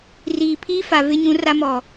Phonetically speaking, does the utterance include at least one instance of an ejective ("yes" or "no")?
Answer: no